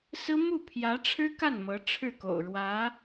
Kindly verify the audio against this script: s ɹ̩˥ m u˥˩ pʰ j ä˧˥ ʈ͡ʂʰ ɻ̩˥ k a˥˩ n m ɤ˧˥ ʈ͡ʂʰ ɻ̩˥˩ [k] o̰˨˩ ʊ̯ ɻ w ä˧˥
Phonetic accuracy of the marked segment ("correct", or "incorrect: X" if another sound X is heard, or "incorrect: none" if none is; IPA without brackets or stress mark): correct